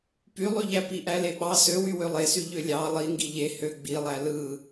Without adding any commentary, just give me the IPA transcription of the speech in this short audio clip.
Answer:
pylˠyʎæ piʔæleɓɑ søwy wølˠesy ʎølʲɑ lˠiŋɡi ʎe hø ɡ͡bilˠæ lɯ

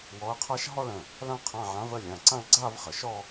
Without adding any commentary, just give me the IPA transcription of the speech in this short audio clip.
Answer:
wɔ˧˥ɐ̯qʰa˥ʃ ɦɔ˥˧ɭə̃˩˧˩ | lã˥qʰã˧˥˧ʕã˧˥v ə˥˧lʲã˩˧˩ ǀã˥˧ɭɡ͡ǀa˥˧vχə˩˧ʃɔ˥˧

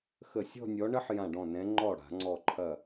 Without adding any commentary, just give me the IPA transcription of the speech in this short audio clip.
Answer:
xə˧˩sʲɔ̤˥˧nʲɔ˨˦ɳə˦˥ħ jã˧˩ɖɔ̃˧˩nɛ̃˨˦ ŋ͡ǃɔ˧˩ ɽa̤˧˩˧ŋ͡ǀɔ˧˩ǃʰɐ˧˩

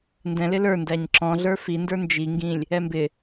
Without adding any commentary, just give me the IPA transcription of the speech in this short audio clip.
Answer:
ndɛ̃lɪ lə˞ndæɲ ǁɔ̃ɮə˞ fində˞ nd͡ʒiŋɡĩlʲ | ɛmbɪ

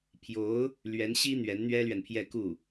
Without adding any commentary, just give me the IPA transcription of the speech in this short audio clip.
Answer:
pʰjo˧˥ʊ̯ | lɥɛ˧˥nɕi˥ n̪ɥɛ˧˥nn̪ɥɛ˥lɥɛ˨npʰjɛ˥˧ ku˥˩

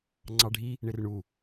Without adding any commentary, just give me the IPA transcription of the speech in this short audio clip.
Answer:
ŋ͡ǀɑɖʱi | ɳɪrɳu

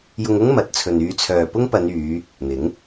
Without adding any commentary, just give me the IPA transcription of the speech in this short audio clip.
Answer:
jʊ˧ŋʊ˥ŋ mɐ˨t̚ t͡sʰɵ˨nyː˧t͡sʰœː˨ pʊ˥ŋpɐ˨˧nyː˨˧ | n̪ɪ˨˥ŋ

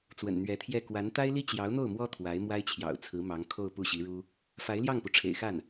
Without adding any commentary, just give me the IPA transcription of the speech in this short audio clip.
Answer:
t͡swə̰˨˩nn̪ɥɛ˧˥t̪ʰjɛ˥˩ kwa˧˥n t̪a˥ɪ̯li˥t͡ɕjɑ˧˥ʊ̯n̪o˥˩ʊ̯ mwɔ˥ t̪ʰwa˧˥ɪ̯mwa˥ɪ̯t͡ɕʰjɑ̰˨˩ʊ̯t͡sʰɹ̩˧˥ mɑ˧˥ŋkʰo˥˧ʊ̯ pu˥˩ɕi˧˥ɻu˥ | fa˧˥ɪ̯ljɑ˥˩ŋpu˩ ʈ͡ʂʰḛ˨˩ɪ̯xa˥˩n

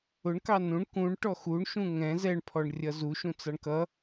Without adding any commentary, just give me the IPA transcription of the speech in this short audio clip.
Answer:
ʊɳkɑ nũɳ kũɳʈɔ xuɳʃũ ŋɛ̃ zɛɳpʰɔɳ rʲʌzuʃũ t͡sɑɳkʌ

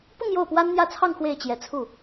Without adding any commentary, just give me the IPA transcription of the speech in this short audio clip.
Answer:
pʊ˥˧ŋ jo˥˩ʊ̯pwa˥nn̪jä˥˧t͡sʰɑ˥˧ŋ xwe˥˩ɪ̯t͡ɕjɛ˧˥t͡sʰu˥˩

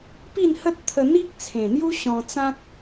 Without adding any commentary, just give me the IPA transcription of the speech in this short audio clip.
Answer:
pi˥˧nhə˦t̚ t̪ʰə˧ n̪i˦k̚t͡sʰẽ˨˩n̪ju˦ ɕɔ̃˧t͡sã˦k̚

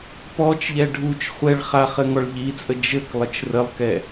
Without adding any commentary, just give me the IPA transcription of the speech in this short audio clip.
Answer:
pɔt͡ʃʎɛ ɖʱut͡ʃ χʷɛɭ χaχ ɘŋɔɭʎit͡sʼə d͡ʒɘk lˠət͡ʃrəlˠkɛ

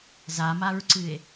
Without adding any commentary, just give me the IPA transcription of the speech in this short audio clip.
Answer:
zamaɹǀɨe̯

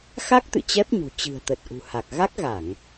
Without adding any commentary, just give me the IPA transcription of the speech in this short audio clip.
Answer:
xa˦˥k̚t̪ɨ̰˧˨ t͡ɕɛ˦˥p̚ɲṳ˨˩ t͡ɕɨ̤˨˩ə̯t̪ə˨˩t̚ ʔṳ˨˩ha˨˩k̚ ɣa˦˥k̚ɣa˧˩˨ŋ

